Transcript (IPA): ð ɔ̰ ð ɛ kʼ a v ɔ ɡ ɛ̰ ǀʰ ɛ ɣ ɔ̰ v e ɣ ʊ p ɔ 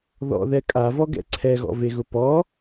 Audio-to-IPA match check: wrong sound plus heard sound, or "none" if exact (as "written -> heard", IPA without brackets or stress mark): none